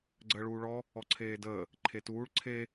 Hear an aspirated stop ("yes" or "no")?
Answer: yes